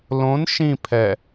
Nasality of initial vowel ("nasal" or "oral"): nasal